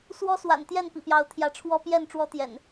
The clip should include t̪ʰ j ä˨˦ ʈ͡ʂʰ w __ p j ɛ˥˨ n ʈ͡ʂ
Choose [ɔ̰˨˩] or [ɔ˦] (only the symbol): ɔ˦